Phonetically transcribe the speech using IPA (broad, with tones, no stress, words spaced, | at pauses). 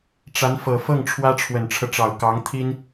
ʈ͡ʂa˧˥nfɤ˨˩fɤ˥˩ŋ ʈ͡ʂʰwä˥ʈ͡ʂʰwə˨˩nʈ͡ʂʰɤ˦ʈ͡ʂɑ˨˩ʊ̯ kɑ˧˥ŋt̪ʰi˥n